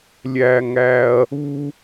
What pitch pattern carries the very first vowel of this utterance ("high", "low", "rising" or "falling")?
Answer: high